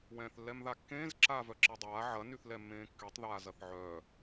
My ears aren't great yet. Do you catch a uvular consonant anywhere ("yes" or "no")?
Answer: no